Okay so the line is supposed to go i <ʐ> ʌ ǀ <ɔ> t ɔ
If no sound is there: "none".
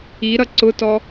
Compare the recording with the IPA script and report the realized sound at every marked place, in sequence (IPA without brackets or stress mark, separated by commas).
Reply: ɾ, ʊ